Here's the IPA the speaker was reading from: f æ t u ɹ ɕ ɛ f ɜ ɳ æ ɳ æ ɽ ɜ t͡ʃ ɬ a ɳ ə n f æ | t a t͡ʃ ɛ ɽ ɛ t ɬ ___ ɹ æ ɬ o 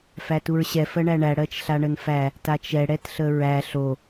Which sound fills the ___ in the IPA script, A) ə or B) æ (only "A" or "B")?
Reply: A